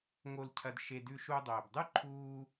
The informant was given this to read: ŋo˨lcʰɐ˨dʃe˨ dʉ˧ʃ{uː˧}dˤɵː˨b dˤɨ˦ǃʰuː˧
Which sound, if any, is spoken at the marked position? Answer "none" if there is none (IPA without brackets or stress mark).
u˧